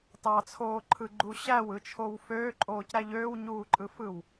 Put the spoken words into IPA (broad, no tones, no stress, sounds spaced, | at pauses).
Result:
t ɑ t͡sʰ oː ǃʰ ɯ ɡ͡ǃ u ɕ æ w ɯ t͡ʃʰ o w f øː ǃʼ oː c ɾ æ ʎ øː w ɲ uː ǃʼ ɯ f ɯ w